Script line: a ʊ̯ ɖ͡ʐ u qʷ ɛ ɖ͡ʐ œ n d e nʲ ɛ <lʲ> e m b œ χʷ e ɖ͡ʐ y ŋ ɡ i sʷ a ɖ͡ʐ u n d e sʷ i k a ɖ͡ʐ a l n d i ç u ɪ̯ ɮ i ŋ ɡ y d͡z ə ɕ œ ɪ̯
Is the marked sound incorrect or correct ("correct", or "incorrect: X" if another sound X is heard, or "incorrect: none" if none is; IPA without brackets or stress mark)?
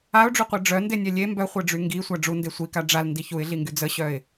correct